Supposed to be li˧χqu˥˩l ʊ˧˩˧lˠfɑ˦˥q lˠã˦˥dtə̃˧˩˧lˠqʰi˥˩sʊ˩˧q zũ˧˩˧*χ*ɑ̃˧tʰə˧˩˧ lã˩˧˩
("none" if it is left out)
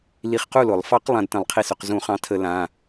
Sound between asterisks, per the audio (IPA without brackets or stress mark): χ